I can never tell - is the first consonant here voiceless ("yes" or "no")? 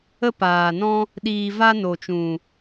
yes